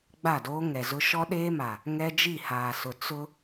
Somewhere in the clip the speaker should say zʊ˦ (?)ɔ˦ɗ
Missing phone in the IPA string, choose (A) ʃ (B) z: A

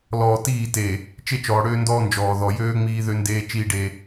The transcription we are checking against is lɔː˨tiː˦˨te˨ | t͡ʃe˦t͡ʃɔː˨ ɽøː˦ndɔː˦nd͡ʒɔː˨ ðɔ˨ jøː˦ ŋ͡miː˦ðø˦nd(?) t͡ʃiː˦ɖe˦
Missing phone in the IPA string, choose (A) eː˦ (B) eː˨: A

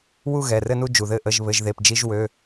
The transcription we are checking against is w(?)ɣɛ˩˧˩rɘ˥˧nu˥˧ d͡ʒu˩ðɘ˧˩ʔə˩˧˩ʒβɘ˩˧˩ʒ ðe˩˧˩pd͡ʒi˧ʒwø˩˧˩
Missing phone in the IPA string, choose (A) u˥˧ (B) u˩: A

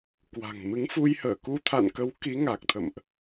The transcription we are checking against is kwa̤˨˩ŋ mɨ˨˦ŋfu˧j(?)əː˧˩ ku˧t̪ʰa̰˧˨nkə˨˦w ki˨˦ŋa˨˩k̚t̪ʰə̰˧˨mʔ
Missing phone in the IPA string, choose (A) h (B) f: A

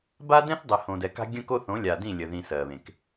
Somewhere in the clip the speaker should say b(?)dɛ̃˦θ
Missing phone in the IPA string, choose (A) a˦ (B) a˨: A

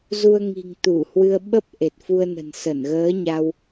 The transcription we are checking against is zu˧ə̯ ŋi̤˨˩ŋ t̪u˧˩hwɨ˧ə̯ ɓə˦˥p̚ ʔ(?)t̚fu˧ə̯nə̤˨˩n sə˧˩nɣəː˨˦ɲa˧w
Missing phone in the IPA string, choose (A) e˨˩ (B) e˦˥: A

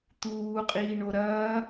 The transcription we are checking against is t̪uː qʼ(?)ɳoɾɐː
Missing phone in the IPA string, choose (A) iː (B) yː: A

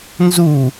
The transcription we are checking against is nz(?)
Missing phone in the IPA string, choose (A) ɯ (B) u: B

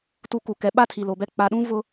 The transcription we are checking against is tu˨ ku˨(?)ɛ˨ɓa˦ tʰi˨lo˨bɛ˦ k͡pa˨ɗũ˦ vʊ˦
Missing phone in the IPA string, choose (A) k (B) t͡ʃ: A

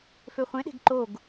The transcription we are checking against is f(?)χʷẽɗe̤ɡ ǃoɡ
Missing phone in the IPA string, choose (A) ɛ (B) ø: B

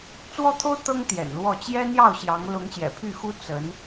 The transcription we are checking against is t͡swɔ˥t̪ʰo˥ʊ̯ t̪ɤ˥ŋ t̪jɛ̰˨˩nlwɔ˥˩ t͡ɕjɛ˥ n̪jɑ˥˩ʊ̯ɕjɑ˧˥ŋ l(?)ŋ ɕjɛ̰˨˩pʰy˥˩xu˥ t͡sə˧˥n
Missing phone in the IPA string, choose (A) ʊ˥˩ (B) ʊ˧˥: B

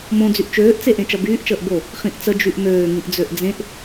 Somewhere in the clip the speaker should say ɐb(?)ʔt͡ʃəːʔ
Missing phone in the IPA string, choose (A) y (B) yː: B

